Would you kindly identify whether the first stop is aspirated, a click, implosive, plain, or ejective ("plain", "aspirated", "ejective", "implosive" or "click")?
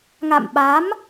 implosive